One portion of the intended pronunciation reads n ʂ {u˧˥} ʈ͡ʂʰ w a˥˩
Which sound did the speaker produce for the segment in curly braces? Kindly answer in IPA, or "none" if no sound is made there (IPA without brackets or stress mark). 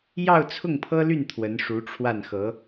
u˧˥